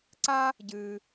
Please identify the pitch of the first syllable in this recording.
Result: high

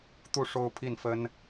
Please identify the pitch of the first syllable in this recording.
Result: falling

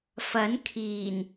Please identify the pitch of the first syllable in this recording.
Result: rising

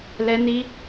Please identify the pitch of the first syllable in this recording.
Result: high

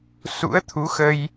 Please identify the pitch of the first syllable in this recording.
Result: rising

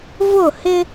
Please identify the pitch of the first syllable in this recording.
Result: falling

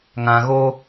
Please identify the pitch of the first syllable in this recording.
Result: low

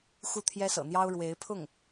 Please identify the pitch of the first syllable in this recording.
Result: falling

